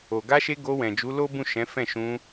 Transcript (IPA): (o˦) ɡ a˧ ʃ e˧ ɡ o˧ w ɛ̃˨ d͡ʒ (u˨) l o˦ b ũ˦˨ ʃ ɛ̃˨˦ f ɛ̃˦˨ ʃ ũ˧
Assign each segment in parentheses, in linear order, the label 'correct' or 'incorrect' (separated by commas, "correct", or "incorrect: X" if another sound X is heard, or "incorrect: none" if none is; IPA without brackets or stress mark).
incorrect: o˨, incorrect: u˨˦